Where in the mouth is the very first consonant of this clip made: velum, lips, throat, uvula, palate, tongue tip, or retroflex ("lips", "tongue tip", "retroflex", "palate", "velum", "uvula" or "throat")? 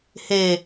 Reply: throat